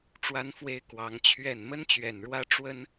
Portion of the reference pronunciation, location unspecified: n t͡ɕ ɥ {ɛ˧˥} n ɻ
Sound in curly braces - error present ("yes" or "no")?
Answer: yes